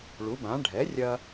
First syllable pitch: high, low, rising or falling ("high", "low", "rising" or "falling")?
rising